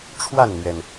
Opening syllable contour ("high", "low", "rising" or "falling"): falling